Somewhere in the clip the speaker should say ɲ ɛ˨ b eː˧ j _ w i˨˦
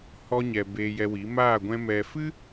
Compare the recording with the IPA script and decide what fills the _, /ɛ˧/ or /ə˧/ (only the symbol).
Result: ɛ˧